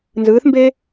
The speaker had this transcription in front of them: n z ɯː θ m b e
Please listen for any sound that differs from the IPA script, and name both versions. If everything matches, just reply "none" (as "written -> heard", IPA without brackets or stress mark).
none